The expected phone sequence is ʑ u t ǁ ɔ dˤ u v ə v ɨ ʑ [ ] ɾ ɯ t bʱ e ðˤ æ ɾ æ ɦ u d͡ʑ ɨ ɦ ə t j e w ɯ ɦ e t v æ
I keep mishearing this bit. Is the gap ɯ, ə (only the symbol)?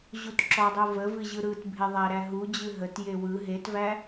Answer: ɯ